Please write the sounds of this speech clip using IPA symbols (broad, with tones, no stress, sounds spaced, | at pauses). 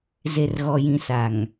z e˨ r ɣ ɔ˨ j ĩ˨ s a˨ ŋ